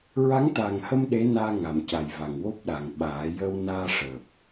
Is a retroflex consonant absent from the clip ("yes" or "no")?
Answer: no